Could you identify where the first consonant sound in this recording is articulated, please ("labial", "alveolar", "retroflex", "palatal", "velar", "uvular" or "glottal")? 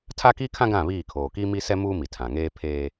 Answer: alveolar